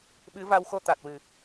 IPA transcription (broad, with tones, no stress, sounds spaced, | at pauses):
ɓ ɨ˧˥ v a˧ w x o˧ t̪ a˨˩ t̚ w ɨ˨˩˨